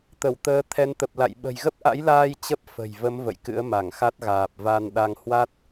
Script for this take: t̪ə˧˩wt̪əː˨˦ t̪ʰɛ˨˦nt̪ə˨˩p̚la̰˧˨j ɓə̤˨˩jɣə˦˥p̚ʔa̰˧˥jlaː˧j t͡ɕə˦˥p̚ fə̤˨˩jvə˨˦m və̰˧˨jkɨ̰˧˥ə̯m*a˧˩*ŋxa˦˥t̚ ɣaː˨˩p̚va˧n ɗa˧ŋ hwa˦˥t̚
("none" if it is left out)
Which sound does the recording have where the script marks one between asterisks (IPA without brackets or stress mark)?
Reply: a˧˩